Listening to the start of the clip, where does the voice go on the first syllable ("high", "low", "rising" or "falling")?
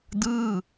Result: falling